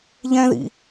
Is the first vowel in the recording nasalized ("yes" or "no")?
yes